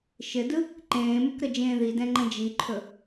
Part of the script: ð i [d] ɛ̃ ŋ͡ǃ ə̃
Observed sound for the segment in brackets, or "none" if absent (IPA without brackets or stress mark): d